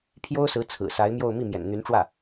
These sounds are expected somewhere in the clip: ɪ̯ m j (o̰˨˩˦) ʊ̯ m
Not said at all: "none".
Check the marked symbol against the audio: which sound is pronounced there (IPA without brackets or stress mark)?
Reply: o˥˧